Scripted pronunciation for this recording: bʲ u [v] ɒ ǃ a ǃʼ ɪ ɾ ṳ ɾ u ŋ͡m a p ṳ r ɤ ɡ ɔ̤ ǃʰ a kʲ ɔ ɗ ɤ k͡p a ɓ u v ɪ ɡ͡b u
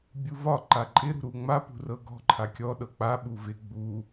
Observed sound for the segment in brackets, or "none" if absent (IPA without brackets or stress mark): v